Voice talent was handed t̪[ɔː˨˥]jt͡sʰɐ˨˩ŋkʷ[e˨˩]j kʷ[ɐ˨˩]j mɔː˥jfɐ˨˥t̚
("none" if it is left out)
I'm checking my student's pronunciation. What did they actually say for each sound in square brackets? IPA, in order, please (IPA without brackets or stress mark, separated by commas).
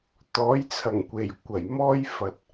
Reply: ɔː˨˥, e˨˩, ɐ˨˩